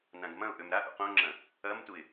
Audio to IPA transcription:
n ã ɡ m ɐ̃ ʊ̯ ʔ ø m ɾ a ʔ ṵ q õ ŋ͡ǁ ɐ̃ | ɐ m t u ɪ̯

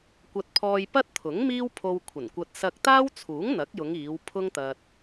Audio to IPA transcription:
kʷ ɐ˧ t̚ pʰ ɔː˧ j p ɐ˥ t̚ t̪ʰ ʊ˨˥ ŋ m iː˥ w pʰ o˧ w kʷʰ ɐ˨˩ n kʷ ɐ˧ t̚ s ɐ˧ k̚ t̪ aː˥ w t͡sʰ uː˨˥ ŋ n̪ ɐ˨˥ k̚ j ʊ˨˧ ŋ iː˨˧ w pʰ ʊ˥ ŋ t̪ ɐ˧ t̚

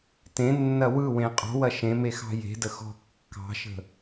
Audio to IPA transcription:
t ẽ nː ɐ w ɯ w ẽ qʼ ɔ̤ w ɐ ʃ ẽ m e x ɑ̤ j e̤ d ə x ɔ̤ kː ɑ̤ ʃ ə̤

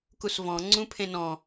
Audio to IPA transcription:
k u s v ɔ̃ ŋ͡ǀ ũ pʰ ẽ n ɔ̃

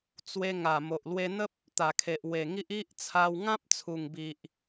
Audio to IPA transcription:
t͡s w e˧ ŋ a˨˩ m o˨ ʔ l w e˧ n̪ ə˦ p̚ | t̪ a˨˩ kʰ e˨ ʔ w e˨˩ ŋ i˦ ʔ i˦ ʔ t͡sʰ a˧ w ŋ ã˦ p̚ t͡sʰ u˨˩ ŋ b i˨ ʔ

